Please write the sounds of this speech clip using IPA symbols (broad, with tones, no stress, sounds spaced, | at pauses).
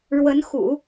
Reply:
ɻ w ə˧˥ n x ṵ˨˩˦